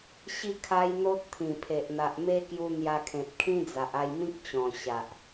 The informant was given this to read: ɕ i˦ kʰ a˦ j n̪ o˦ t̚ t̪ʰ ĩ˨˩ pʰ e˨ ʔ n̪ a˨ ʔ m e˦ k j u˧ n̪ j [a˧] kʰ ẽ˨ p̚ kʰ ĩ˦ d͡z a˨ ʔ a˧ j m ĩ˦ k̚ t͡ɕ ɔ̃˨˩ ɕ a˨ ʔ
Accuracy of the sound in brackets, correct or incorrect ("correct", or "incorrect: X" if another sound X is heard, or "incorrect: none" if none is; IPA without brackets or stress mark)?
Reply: correct